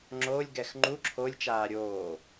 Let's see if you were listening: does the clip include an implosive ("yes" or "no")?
no